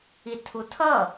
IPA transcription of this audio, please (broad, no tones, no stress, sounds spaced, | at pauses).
i tʰ u tʰ ʌ